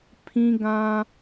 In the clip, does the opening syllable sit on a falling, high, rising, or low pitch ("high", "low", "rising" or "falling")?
high